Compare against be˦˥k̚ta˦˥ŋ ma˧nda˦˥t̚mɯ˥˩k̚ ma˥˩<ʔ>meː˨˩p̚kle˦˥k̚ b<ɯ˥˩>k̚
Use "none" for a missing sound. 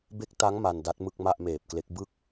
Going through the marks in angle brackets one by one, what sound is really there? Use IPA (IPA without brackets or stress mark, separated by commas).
ʔ, ɯ˥˩